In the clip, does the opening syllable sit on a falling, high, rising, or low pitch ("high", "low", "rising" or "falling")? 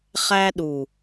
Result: high